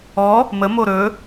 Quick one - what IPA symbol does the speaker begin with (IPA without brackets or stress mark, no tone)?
ɔ